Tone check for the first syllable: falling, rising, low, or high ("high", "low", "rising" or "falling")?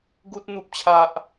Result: high